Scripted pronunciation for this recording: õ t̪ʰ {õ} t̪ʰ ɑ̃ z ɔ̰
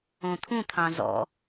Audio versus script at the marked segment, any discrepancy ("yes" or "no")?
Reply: yes